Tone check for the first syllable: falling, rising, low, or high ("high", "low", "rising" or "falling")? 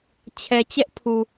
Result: low